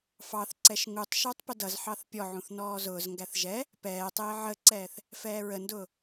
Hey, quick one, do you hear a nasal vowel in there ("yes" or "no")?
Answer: yes